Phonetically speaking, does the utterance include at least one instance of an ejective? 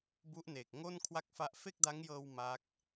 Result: no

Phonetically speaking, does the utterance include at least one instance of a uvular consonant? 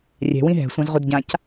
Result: yes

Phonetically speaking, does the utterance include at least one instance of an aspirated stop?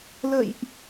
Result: no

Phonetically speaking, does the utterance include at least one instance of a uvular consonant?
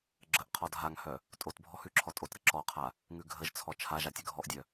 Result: yes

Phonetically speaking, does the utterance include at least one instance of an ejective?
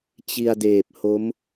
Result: no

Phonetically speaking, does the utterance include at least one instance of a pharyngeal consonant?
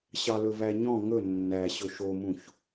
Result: no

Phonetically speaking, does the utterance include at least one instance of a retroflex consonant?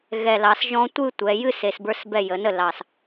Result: no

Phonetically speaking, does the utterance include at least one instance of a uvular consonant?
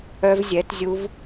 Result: no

